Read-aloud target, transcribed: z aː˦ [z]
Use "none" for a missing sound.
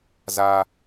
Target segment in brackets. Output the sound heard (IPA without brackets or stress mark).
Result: none